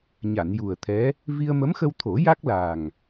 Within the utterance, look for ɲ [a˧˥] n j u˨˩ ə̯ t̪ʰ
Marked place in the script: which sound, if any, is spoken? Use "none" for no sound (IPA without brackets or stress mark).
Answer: a˨˩˨